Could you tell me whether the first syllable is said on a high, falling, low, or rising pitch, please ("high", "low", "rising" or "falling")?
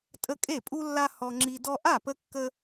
high